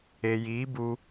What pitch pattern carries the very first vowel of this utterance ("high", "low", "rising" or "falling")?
low